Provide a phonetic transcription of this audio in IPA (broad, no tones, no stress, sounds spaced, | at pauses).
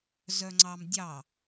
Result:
z œ ŋ͡ǀ ɑ m dʲ ɑ